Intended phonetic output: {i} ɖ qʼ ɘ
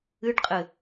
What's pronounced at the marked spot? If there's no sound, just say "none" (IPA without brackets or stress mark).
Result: ɨ